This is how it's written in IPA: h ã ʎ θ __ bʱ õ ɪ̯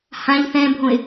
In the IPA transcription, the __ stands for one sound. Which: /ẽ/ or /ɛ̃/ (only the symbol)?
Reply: ɛ̃